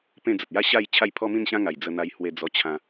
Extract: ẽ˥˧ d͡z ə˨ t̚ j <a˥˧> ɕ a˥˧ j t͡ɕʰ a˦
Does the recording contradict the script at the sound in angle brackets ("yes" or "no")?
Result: no